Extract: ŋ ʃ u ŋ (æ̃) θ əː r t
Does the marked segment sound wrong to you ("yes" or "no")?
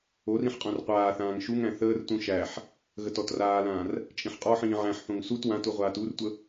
no